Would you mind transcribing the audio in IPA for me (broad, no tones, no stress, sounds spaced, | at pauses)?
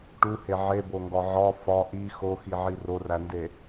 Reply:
ʈ u h e ʕ e b o ŋ ɡ ɒ ʕ ɒ f ɒ ʔ i x o x i ʕ i r o r æ n d e